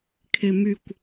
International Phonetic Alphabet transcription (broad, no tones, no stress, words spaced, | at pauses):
kʰemykʷ